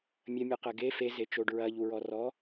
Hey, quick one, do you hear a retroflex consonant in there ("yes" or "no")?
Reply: yes